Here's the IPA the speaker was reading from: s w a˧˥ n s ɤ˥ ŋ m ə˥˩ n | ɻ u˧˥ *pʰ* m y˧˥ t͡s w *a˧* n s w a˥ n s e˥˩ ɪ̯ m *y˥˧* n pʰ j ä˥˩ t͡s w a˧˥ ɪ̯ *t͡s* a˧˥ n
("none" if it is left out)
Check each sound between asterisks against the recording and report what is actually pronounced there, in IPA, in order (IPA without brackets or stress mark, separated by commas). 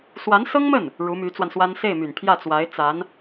none, a˧, y˨˩, t͡s